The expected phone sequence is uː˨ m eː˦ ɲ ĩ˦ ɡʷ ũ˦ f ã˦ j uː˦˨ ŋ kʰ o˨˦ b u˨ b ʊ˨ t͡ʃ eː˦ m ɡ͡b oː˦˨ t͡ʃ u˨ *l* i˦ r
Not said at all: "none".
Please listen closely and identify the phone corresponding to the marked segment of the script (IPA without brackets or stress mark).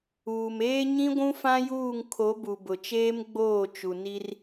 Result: n